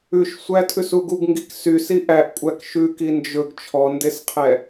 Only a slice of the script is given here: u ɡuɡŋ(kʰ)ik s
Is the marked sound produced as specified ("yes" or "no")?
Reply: no